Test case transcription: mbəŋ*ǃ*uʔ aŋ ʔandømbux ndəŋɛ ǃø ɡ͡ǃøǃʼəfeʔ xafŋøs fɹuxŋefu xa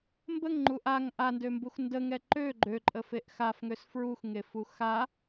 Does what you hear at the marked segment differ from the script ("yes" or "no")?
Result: yes